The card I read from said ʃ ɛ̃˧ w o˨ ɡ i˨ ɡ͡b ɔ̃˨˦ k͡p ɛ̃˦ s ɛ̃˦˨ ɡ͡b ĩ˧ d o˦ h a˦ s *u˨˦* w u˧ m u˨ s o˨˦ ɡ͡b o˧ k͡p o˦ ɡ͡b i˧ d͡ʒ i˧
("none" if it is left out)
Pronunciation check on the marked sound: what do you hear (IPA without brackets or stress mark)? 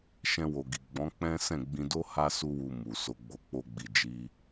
u˦